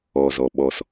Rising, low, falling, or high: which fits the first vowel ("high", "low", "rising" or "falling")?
low